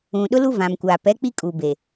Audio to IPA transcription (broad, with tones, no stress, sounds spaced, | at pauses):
ũ˨ ɗ ʊ˦ l u˦ v ã˨ m kʷ aː˨ p ɛ˨˦ k͡p i˦ kʼ uː˨ b e˨